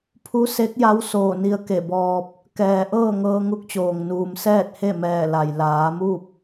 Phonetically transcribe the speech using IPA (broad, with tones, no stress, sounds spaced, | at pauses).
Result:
pʰ u˧˥ s e˧˥ k̚ j a˧˥ w s oː˧˩ n i˧ ə̯ k e˧˩ b ɔː˧ p̚ | k ɛː˩ ʔ ɤː˥˨ ŋ ɤː˧ ŋ u˧˥ k̚ t͡ɕ oː˩ ŋ n uː˩ m s ɛː˥˨ t̚ h e˥˨ m ɛː˧˩ l a˩ j l aː˩˧ m u˥˨ p̚